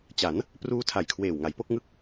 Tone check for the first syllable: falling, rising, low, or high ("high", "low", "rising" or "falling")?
rising